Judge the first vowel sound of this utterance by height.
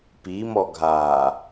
high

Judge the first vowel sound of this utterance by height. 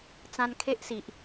low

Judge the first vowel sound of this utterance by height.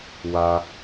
low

